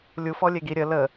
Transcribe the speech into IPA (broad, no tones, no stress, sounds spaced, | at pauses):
lʲ u f ɔ lʲ e ɡ i ɾʲ ə l ə